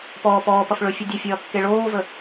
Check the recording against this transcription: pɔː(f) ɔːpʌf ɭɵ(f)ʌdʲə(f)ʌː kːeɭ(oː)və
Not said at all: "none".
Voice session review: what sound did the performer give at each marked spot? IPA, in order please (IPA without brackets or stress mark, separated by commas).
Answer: p, fʲ, fʲ, oː